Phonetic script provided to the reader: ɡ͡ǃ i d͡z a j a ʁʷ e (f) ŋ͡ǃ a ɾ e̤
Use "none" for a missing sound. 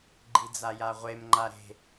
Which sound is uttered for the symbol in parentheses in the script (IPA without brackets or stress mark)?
m